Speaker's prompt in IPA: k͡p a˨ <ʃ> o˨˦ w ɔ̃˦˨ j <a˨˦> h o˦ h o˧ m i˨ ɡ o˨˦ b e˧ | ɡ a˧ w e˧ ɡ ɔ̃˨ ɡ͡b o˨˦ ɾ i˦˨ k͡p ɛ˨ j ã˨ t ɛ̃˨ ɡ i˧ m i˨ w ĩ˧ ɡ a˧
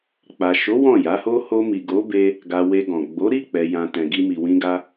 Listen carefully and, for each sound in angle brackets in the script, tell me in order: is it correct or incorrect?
correct, correct

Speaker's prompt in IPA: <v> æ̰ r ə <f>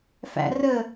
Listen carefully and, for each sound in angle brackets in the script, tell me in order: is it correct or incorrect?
incorrect: f, incorrect: none

